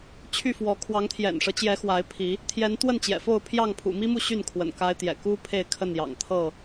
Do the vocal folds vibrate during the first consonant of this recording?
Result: no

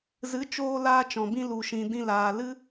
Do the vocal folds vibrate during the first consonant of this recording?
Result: yes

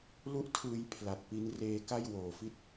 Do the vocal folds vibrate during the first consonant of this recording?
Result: yes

